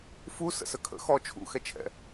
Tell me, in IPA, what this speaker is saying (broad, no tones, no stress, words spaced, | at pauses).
fu sə̰səkʰə̰ xɔ t͡ʃʰṵxɛt͡ʃʰɛ̰